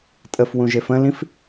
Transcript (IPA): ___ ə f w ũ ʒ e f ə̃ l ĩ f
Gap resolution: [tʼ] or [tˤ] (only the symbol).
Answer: tʼ